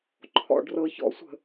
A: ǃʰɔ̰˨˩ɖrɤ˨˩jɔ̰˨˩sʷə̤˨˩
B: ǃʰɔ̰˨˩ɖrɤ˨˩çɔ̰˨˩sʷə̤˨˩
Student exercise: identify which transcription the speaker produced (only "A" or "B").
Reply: B